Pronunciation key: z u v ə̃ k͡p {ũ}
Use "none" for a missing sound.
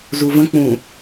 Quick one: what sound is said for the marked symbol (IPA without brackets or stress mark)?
ũ